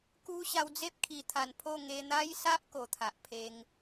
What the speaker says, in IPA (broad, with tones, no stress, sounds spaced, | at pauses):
k u˦ ɕ a˧ w d͡z e˦ p̚ kʰ i˨˩ t̪ʰ a˨˩ n pʰ o˥˧ ŋ e˧ n̪ a˦ j s a˦ ʔ k o˨˩ t̪ʰ a˨ ʔ pʰ e˧ ŋ